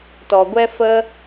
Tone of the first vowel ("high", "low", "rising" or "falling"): low